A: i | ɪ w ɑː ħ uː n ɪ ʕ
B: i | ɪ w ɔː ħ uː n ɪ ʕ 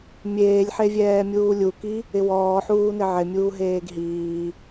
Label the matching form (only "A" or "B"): B